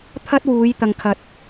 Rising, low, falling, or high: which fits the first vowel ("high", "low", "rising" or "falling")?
high